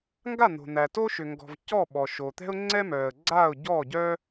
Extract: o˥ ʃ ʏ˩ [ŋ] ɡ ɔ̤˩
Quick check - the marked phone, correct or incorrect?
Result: correct